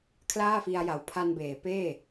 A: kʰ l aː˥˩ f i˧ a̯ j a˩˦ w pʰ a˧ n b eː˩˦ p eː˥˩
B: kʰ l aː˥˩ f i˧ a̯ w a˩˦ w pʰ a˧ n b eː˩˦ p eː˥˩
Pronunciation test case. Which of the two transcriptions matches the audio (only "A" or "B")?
A